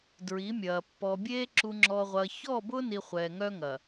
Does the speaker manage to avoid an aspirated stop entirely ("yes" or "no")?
yes